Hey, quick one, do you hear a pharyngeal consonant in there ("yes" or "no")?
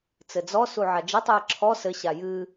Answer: yes